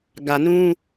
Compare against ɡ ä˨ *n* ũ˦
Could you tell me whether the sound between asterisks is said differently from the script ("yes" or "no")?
no